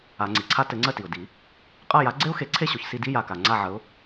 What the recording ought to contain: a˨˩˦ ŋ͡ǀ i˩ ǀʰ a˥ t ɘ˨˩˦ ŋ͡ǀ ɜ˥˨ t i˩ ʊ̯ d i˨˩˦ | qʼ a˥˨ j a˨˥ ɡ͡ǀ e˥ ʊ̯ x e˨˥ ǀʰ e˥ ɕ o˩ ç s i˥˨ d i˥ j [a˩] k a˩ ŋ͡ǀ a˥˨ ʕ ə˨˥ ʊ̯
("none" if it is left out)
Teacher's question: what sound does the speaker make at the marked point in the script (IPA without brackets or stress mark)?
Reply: a˩